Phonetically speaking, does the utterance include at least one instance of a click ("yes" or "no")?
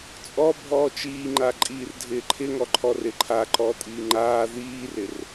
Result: yes